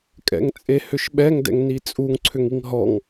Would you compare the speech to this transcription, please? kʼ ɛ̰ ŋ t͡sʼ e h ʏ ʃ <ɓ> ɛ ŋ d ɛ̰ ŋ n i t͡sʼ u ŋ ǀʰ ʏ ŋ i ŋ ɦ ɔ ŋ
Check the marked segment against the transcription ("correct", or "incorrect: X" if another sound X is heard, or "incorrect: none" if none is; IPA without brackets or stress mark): correct